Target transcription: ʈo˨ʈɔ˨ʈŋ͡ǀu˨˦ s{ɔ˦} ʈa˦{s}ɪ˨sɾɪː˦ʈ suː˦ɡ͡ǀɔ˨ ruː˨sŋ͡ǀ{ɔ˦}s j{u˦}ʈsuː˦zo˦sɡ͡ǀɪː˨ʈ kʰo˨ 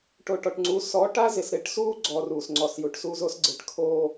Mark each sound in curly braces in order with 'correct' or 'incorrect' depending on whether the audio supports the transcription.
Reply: incorrect, incorrect, incorrect, incorrect

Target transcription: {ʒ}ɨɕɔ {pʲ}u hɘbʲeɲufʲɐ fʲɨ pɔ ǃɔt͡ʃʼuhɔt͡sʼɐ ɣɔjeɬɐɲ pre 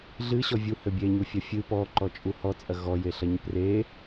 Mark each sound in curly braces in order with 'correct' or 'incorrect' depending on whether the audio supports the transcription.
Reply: incorrect, incorrect

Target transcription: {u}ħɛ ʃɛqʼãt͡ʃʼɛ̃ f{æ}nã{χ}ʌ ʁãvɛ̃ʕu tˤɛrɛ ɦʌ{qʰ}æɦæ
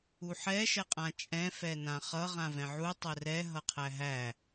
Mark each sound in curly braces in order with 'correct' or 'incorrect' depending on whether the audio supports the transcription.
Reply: correct, incorrect, correct, correct

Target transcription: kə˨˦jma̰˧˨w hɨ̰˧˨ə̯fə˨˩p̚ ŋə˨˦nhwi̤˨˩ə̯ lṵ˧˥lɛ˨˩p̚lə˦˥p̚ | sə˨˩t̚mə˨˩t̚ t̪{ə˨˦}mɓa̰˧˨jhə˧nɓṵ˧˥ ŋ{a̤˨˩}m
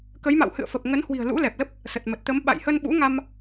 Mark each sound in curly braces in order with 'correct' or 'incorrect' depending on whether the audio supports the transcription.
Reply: correct, incorrect

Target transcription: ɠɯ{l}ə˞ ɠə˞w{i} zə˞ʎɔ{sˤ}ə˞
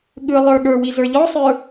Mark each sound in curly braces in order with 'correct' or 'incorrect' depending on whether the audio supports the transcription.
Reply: incorrect, correct, correct

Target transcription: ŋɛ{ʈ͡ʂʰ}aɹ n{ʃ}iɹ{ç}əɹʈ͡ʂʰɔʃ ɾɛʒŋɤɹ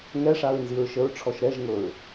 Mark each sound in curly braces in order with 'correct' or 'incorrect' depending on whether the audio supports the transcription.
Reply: incorrect, incorrect, incorrect

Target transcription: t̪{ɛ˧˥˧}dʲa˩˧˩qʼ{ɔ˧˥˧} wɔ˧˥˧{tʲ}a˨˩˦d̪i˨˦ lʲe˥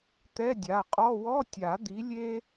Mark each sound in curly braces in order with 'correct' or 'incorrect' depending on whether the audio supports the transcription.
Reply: correct, correct, correct

